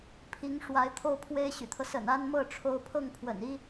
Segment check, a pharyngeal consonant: absent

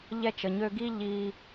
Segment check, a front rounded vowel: present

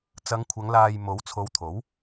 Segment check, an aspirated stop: present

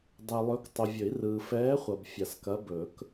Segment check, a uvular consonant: present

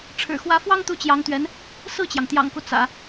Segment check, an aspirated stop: present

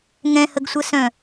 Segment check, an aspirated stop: absent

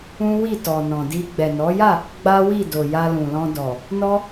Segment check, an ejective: absent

